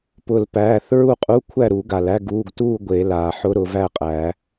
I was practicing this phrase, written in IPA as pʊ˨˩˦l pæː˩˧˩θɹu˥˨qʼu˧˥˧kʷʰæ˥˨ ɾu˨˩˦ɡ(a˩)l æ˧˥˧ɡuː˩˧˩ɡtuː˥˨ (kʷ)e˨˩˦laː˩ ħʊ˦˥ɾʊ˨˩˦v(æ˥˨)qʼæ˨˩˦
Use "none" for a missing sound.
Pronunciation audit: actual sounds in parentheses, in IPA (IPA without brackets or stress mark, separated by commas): a˩, ɡʷ, æ˥˨